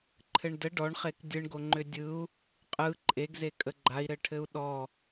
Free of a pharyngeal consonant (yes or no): yes